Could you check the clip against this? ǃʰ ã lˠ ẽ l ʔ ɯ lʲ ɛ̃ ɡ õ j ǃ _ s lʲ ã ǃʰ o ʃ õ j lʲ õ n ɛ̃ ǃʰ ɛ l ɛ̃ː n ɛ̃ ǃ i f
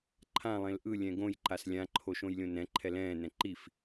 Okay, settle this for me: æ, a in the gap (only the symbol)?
a